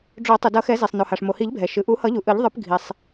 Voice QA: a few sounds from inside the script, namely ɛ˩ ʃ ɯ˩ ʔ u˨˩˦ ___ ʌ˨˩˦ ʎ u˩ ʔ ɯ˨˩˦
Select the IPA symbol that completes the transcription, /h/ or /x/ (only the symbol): h